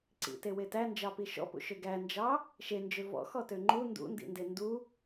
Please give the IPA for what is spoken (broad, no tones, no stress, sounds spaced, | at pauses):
ǀ ḭ t e w e t æ n d͡ʒ ɑ p i ʃ ɔ̰ p ṵ ʃ ø ɡ æ n d͡ʒ ɑ | ʃ e n d͡ʒ ø v ɔ̰ x ɔ t ø ŋ͡ǃ u n d ṵ n d ḭ n d e n d u